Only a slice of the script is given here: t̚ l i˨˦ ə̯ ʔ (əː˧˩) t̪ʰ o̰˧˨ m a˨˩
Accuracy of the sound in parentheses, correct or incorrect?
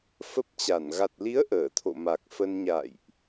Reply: correct